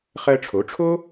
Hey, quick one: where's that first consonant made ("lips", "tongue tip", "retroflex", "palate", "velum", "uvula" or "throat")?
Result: uvula